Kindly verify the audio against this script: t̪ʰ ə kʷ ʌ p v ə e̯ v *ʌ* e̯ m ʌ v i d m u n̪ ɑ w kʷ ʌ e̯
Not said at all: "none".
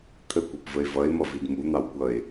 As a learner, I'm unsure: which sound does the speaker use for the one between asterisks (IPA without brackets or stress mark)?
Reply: ʌ